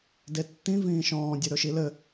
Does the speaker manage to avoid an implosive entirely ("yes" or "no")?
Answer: yes